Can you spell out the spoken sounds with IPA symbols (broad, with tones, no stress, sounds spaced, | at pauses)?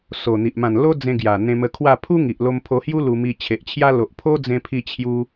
s o˨˩ n̪ i˨ ʔ m ã˨˩ n l o˦ d͡z ẽ˧ ɡ j a˨˩ n̪ ẽ˧ m ə˧ kʰ w a˥˧ pʰ u˦ ŋ i˨ ʔ l o˧ m pʰ o˧ h j u˦ l u˧ m i˧ t͡ɕʰ e˨ ʔ t͡ɕʰ j a˧ l o˨ ʔ pʰ o˦ d͡z ẽ˧ pʰ i˧ t͡ɕʰ j u˧